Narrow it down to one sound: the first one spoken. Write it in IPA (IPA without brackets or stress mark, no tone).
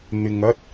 n̪